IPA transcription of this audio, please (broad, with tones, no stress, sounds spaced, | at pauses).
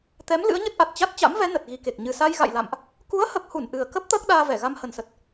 t̪ ɛ˨˦ m l ɨ̰˧˥ ə̯ ɲ ə˦˥ t̚ ʔ a˨˩ t̚ t͡ɕ a˦˥ t̚ t͡ɕ a̰˧˥ m v ɛ˨˦ n ə˨˩ t̚ ɣ i˨˩ k e˨˩ k̚ ɲ ɨ˨˩ s a˧ j ɣ a̰˧˨ j l a̰˧˨ m ʔ | k u˨˦ ə̯ h ə˨˩ p̚ h u˧˩ n ʔ ɨ˨˩ ə̯ k ə˦˥ p̚ t̪ əː˦˥ k̚ ɗ aː˧ v ɛ˧˩ ɣ a˧ m h ə˨˩ n s ə˨˩ t̚